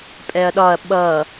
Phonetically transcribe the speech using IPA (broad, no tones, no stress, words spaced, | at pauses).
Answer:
pʼɛɐ̯ɗɒɐ̯ ɓʌ